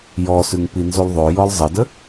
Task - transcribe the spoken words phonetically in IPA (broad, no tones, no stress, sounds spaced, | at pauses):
j ɔ s ʉ ŋ p i n z u lˠ ðˤ o j ɔ lˠ zˤ ə d ə